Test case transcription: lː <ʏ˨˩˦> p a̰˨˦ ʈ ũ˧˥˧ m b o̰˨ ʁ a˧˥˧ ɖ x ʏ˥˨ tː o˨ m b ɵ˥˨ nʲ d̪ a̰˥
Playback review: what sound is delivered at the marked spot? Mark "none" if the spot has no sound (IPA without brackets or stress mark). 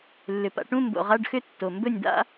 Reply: ʏ˨